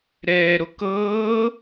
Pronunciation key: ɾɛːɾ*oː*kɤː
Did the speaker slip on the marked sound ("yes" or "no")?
yes